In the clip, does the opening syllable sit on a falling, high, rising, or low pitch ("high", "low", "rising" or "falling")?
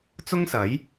high